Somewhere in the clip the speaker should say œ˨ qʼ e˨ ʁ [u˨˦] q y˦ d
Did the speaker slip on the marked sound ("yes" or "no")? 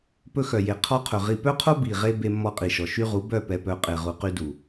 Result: yes